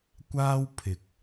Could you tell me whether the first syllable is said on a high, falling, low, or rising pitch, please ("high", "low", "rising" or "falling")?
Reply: high